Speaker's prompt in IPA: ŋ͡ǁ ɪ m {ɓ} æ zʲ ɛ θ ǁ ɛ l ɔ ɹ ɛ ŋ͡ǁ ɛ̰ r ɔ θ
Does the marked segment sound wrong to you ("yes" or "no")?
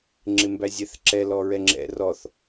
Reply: yes